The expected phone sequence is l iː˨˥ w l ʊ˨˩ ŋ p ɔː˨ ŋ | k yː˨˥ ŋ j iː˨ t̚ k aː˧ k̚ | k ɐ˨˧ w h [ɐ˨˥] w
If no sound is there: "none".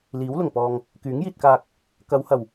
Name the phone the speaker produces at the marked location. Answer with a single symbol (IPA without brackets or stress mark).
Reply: ɐ˨˩